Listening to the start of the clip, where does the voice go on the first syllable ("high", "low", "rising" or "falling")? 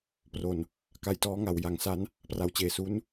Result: low